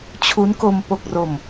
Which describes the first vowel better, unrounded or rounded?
rounded